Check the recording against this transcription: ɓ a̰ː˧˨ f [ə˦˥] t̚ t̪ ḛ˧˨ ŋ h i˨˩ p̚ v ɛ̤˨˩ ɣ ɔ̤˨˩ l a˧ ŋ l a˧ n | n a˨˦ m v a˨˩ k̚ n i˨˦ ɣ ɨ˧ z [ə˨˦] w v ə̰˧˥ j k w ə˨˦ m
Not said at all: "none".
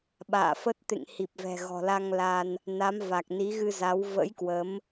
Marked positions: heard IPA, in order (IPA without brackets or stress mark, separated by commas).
ə˦˥, a˨˦